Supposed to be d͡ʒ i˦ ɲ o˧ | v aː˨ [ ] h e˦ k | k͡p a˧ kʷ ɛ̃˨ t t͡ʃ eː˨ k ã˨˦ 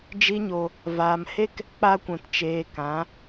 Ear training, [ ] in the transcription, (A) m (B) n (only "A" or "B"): A